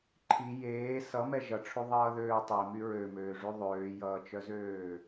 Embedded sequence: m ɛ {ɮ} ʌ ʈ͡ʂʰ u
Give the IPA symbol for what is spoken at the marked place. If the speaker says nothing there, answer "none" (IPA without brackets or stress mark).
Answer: ʒ